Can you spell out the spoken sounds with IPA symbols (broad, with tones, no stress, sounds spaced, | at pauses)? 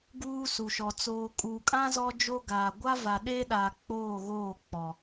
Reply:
ɡ uː˦ s u˨ ʃ ɔ˨ t͡s oː˨ kʼ uː˨ kʼ ã˦ z ɔ˦ d͡ʒ o˦ ɡ a˨ ɡʷ a˦ v a˨ ɗ eː˦ ɗ aː˨ k͡p oː˦˨ ɣ oː˦˨ k͡p ɔ˨